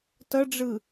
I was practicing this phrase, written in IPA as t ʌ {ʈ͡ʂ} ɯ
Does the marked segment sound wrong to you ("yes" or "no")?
yes